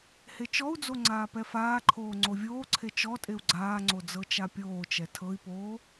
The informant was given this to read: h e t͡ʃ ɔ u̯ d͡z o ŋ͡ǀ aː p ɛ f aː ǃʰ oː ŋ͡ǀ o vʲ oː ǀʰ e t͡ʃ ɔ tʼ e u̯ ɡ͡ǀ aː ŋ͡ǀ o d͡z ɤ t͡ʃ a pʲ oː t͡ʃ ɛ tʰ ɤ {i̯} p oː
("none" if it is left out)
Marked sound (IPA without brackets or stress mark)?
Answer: i̯